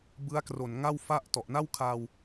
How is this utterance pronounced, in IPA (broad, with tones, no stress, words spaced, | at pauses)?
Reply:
bɯ˦˥a̯kro˨˩nŋa˥˩w fa˥˩ʔ tɔ˨˩ʔna˥˩wkʰaː˧w